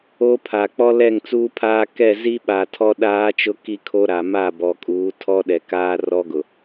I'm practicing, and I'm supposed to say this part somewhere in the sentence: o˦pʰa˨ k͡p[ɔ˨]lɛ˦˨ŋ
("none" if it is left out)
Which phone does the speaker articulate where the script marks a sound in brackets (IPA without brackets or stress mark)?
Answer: ɔ˦